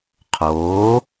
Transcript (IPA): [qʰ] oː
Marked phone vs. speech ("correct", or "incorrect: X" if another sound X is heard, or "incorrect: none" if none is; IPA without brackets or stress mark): correct